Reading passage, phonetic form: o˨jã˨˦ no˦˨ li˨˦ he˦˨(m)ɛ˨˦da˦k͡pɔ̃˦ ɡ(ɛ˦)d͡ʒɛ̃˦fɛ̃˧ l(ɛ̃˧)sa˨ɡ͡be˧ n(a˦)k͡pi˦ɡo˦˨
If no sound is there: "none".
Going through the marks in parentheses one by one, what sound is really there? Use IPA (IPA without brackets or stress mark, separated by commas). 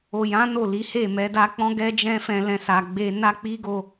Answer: m, ɛ˦, ɛ̃˧, a˦